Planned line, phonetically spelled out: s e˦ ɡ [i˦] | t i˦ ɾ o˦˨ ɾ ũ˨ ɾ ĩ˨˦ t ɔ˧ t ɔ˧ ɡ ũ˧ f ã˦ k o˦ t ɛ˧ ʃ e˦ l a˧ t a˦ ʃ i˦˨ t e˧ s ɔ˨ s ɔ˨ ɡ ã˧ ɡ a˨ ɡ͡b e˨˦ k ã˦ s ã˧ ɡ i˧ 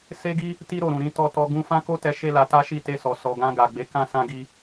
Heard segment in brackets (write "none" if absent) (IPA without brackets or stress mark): i˦